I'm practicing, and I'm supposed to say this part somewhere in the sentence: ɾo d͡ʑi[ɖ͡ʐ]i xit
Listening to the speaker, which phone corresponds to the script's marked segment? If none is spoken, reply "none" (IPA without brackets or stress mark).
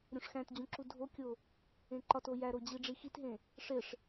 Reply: ɖ͡ʐ